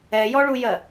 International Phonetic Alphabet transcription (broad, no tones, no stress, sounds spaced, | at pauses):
ɛ j ɔ ɭ u j ɜ